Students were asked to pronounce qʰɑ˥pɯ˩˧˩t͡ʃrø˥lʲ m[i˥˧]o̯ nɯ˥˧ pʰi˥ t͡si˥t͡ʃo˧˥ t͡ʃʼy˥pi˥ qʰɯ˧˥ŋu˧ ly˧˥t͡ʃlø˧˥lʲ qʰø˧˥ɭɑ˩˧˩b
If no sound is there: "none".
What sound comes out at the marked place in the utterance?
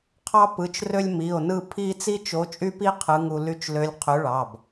i˩˧˩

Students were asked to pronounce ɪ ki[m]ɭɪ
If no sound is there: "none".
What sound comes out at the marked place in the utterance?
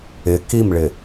m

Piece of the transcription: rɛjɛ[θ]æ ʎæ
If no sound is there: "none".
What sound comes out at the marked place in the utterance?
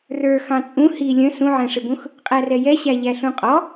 ɕ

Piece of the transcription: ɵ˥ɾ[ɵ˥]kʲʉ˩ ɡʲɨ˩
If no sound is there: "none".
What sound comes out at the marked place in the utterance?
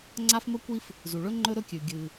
ɵ˥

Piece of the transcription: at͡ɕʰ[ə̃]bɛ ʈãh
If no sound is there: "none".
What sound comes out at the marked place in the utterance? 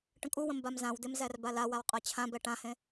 ã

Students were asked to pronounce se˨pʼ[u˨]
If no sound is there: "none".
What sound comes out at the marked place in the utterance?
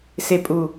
u˨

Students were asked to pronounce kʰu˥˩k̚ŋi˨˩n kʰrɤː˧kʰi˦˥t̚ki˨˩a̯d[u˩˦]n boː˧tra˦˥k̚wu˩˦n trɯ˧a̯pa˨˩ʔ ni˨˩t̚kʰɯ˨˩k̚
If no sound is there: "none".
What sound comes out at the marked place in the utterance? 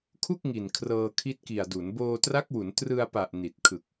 u˩˦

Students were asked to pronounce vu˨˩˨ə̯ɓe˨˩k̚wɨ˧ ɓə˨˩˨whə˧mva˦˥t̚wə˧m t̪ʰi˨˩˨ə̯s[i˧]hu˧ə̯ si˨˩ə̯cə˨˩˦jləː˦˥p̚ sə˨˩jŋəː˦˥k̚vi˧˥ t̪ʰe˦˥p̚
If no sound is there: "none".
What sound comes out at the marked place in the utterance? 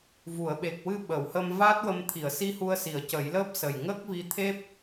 i˧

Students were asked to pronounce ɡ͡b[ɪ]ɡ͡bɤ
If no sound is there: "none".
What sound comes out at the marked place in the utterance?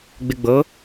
ɪ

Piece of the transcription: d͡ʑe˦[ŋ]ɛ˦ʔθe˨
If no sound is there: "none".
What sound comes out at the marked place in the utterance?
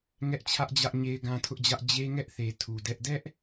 ŋ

